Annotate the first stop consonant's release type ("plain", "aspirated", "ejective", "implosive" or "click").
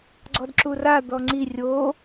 click